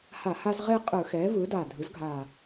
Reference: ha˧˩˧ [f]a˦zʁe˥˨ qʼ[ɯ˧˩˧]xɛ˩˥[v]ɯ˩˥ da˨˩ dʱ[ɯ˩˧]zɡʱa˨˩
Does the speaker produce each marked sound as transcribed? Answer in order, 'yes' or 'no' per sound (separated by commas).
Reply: no, yes, yes, no